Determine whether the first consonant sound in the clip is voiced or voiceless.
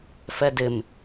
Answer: voiceless